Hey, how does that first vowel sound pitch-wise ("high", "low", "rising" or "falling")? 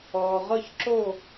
low